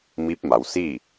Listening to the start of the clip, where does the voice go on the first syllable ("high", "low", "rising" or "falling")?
rising